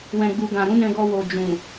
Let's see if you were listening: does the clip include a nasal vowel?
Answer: yes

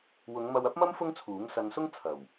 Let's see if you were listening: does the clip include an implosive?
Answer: no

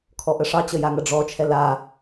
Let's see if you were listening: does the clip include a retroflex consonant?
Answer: yes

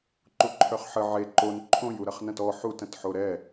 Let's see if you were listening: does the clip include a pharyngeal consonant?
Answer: yes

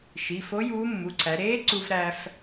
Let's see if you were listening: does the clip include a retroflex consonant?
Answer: no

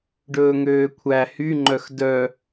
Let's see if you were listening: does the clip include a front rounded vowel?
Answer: yes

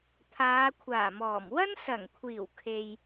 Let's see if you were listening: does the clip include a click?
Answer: no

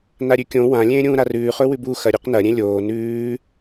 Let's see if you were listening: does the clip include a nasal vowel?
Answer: yes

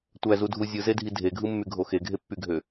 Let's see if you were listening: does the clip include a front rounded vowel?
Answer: yes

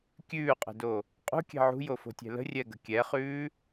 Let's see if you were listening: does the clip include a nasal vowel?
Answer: no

